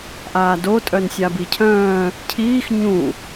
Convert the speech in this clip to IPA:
ʔ aː d o tʼ œ n sʲ a b i cʰ œ̃ː | cʰ iː x ɲ ũ

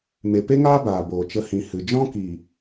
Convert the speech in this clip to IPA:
m e˨ p e˦ ŋ aː˦ b aː˨ b oː˨ t͡ʃ ə˧ h ĩ˨ h ɨ˨ d͡ʒ ɔ̃˦ k iː˨

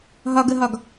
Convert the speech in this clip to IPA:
ɦ ɒ ɡ ə ɦ ɒ ɡ

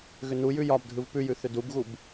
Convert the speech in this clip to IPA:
ɣ ʏ n u j ʉ j ɒ b dʱ ɯ v p ʉ j ʉ θ ʏ d u b ɣ u b

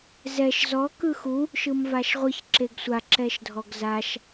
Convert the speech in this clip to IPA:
z ɛ ʃ z ɔ k ɯ x u | ʃ ɯ m v a ʃ ʁʷ ɯ ç ǁ e ɡ sʷ a ǁ ɛ ʃ dʱ ɔ ɡ z a ʃ

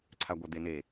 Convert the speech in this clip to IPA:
ǀʰ a ɡʷ ɐ d̪ e n e

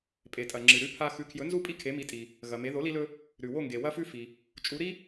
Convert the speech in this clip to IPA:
pʼ e˩ tʼ ɐ˩ ŋ͡ǁ ɨ˩ ɾ ʉ˧ pʰ a˧ x ʉ˩˥ kʰ j ɵ˩˥ n z u˥˩ pʼ i˥ kʰ e˩˥ m i˩˥ tʼ i˩ | ɣ ɐ˩ m e˩˥ ð o˩˥ l i˧ l ɵ˧ | ɾ ʉ˩ w o˥˩ ŋ ɡ e˩ w ɐ˥ f ʉ˥ f i˩ | t͡ʃʼ u˩˥ ɾ i˥

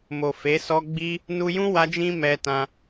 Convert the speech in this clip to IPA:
m o˨ f e˨˦ s ɔ˦ ɡ͡b i˦ | n u˧ j ũ˦ w a˦ d͡ʒ ĩ˦ m ɛ˧ t ã˧

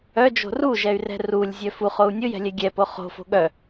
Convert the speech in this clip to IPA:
œ d͡ʒ o̤ r u ʒ ɛ y̯ r ɛ̤ r u lʲ zʲ œ f u χ o u̯ nʲ ʊ j ɛ̤ lʲ ɛ ɡʲ ɛ p o χ o̤ f o̤ ɠ œ

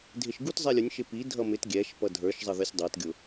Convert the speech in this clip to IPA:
dʱ ɪ ʃ ɡ u t zˤ ɛ lʲ ʊ nʲ ʃ ɪ p i dʱ ʌ m ɪ t ɡʲ ɛ ʃ p ʌ dʱ ə˞ ʃ zˤ ʌ ð ə˞ sʲ dˤ æ t ɡʲ ʊ

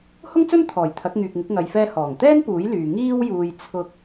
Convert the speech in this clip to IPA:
h ʊ˥ ŋ t͡s ɵ˥ n t̪ʰ ɔː˨˩ j t̪ʰ ɐ˨˥ k̚ ŋ yː˨ k̚ ŋ ɪ˨˥ k̚ ŋ ɐ˨ j f ɛː˧ h ɔː˨˩ ŋ t̪ ɛː˥ n p uː˨˥ j l yː˨ ŋ iː˥ w j uː˧ j t͡sʰ ʊ˥ k̚

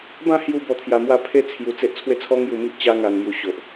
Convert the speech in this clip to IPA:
b ã˥˧ h j u˧ b ɔ˧ t̪ʰ j a˧ m w a˥˧ pʰ e˦ t͡sʰ j u˧ t͡s e˦ ʔ t͡sʰ w e˥˧ t͡sʰ ɔ˦ ŋ j u˧ m i˦ ʔ t͡ɕ a˦ ŋ a˧ n m j u˧ ɕ o˨ ʔ

